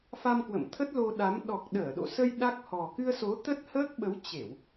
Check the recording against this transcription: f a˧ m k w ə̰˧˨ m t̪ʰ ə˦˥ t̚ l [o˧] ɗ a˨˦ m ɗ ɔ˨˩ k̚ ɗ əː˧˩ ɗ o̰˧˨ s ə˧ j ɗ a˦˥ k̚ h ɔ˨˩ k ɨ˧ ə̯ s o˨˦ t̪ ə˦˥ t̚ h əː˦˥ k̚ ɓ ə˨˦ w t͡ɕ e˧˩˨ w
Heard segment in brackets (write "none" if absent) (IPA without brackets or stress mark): o˧